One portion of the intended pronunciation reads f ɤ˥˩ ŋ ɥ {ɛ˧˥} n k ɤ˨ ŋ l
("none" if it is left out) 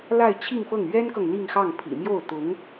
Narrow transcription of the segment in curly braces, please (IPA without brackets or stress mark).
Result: ɛ˥